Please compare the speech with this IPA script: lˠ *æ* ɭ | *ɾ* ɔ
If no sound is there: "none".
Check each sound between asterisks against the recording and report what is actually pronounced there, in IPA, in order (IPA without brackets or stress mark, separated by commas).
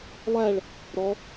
æ, ɾ